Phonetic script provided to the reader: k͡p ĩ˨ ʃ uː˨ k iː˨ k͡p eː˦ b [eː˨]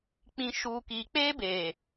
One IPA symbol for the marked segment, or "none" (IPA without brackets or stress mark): eː˨